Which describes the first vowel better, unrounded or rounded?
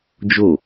rounded